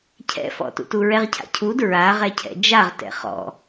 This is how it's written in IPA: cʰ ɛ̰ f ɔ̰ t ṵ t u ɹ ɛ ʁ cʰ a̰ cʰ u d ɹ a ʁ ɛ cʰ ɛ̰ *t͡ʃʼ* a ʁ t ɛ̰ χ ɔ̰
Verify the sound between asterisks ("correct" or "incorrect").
incorrect